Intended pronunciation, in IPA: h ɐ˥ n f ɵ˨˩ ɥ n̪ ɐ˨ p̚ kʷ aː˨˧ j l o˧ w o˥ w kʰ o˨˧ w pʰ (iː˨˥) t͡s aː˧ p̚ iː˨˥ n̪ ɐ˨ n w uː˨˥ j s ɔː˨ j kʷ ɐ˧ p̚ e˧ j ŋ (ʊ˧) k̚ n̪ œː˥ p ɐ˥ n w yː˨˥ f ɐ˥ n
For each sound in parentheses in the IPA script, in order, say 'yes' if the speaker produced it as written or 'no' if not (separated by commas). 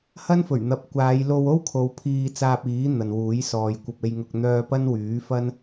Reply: no, yes